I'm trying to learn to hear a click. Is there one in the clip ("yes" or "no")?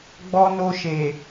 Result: no